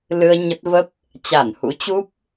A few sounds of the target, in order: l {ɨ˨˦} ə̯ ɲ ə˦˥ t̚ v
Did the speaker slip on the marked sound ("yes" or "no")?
yes